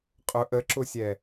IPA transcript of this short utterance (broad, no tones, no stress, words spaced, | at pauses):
qʼʊ ʔəǁʊsʲɛ